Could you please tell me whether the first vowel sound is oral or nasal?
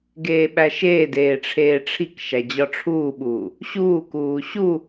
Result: oral